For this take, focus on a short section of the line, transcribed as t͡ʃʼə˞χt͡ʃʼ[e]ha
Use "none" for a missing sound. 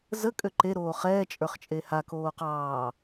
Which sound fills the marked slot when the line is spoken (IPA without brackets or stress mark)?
e